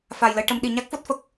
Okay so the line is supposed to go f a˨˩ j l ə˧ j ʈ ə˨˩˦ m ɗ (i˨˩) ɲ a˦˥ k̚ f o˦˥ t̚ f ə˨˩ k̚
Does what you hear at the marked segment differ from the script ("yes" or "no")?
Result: no